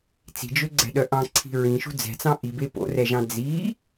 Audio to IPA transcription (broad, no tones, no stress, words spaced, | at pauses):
t͡si̤d͡ʒøɡ͡ǀɛ̤ɗœ ʔɑ̃ǀʰi̤ ɹĩʃṳ d͡zɛ̤t͡sɑ̃ ʔibe po̰rɛʒɑ̃ d͡zi